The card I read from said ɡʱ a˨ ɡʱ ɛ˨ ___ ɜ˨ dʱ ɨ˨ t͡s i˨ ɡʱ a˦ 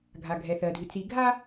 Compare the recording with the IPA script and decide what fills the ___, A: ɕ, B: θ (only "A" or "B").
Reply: B